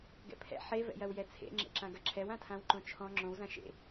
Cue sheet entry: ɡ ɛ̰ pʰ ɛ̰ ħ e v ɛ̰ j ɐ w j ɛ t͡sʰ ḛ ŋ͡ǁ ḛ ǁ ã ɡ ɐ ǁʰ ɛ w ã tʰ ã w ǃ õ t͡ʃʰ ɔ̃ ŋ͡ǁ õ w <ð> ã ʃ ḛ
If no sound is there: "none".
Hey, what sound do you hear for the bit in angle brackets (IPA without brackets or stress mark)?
z